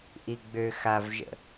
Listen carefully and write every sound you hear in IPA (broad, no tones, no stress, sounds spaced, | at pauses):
ʔ i ɡ͡b ø x a v ʒ ə̰